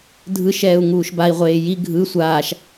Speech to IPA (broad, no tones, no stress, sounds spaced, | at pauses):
dʱ ɯ ʃ ɛː u̯ ŋ uː ʃ b a i̯ ʁʷ eː j i ɡʱ ɯ sʷ aː ʃ